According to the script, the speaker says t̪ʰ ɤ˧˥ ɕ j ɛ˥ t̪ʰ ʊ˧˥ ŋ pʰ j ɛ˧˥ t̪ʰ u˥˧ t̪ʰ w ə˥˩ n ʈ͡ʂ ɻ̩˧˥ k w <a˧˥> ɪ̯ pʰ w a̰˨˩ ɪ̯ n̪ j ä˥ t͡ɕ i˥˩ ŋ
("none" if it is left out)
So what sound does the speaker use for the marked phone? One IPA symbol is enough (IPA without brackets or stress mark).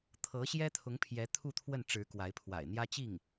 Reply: a˧˥